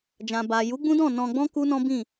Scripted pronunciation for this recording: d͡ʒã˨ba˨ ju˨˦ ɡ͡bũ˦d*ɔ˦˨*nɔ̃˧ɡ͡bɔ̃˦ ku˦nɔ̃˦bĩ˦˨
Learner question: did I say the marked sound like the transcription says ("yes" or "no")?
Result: no